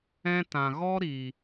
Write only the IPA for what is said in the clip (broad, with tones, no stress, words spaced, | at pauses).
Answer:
ɛ̃˦tã˨ ɣɔ˦ɾi˨